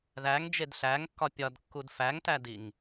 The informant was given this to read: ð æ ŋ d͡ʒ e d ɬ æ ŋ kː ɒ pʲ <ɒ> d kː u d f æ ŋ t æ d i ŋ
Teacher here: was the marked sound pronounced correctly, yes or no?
yes